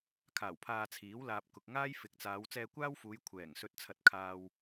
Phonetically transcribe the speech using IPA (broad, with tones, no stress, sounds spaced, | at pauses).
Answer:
kʰ aː˨˩ w pʰ aː˧ t͡sʰ iː˨˥ w l aː˧ p̚ k ʊ˨ k̚ ŋ aː˥ j f ɪ˨˥ k̚ t͡s aː˨˧ w t͡s ɛː˧ kʷ aː˥ w f uː˨˧ j kʷʰ ɛː˨˩ ŋ s ɵ˧ t̚ t͡sʰ ɐ˨ t̚ kʰ aː˧ w